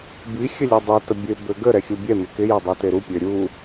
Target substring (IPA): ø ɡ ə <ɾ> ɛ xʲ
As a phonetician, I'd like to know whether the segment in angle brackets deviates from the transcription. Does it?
no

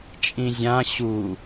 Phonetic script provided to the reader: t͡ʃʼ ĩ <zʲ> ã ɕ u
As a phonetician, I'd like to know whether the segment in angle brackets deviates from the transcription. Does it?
no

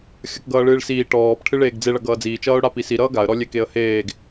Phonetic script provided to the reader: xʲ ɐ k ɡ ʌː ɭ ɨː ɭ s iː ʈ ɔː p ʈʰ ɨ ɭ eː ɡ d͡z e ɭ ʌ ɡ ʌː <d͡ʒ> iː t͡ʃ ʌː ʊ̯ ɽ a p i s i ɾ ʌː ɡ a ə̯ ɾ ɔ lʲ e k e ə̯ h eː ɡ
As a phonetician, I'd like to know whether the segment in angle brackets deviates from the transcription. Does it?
yes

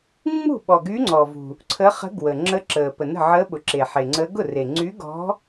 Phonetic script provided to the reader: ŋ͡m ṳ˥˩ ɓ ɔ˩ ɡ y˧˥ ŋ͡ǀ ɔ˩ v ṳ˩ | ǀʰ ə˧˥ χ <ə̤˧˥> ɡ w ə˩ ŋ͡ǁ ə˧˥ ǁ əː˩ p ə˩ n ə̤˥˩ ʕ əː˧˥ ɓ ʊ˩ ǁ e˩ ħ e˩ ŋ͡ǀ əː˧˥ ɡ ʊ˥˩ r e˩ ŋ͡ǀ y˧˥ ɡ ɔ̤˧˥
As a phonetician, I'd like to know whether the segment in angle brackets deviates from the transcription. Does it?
no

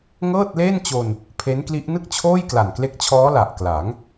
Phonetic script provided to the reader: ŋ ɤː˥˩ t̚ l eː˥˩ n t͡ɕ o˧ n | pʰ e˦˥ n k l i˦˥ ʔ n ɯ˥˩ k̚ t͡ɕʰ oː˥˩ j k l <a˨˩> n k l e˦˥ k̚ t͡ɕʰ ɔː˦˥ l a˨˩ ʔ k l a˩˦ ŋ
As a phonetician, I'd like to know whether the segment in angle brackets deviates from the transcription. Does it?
no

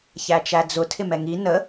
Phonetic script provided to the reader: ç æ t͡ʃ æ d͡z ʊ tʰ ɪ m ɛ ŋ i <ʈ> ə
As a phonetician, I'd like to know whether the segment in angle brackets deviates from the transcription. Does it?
yes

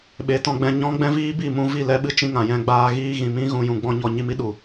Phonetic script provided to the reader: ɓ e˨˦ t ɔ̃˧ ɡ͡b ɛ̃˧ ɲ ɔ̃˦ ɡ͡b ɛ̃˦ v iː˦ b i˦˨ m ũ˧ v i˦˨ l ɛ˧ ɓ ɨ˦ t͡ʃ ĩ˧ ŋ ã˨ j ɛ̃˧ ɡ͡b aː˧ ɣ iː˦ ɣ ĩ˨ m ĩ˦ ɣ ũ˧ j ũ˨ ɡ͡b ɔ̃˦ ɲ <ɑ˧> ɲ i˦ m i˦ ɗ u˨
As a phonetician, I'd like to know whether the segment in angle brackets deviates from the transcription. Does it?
yes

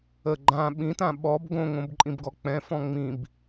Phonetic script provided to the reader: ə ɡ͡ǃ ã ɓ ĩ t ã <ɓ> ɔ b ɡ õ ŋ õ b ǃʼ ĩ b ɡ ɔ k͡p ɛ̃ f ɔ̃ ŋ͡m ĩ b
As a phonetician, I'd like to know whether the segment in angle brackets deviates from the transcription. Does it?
no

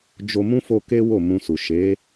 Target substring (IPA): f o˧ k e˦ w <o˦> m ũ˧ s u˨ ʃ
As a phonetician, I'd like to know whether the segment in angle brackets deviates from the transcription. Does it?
yes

